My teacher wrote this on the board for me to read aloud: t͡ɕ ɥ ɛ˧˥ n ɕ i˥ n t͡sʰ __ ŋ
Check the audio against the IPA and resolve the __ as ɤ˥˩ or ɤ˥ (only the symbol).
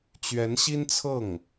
ɤ˥˩